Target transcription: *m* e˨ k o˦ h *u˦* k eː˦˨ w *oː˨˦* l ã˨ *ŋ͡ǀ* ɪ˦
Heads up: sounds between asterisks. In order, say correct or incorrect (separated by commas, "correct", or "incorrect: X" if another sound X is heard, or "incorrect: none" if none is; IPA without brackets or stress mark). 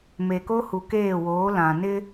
correct, incorrect: u˨, correct, incorrect: n